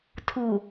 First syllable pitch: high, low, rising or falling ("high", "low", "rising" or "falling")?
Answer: low